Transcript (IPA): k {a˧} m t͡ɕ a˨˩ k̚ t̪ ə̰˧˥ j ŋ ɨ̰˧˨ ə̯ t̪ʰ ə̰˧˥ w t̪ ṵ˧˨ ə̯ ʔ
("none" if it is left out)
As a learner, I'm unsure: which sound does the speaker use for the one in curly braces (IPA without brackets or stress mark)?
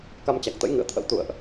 a˧